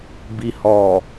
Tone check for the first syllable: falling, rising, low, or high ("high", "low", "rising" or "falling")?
low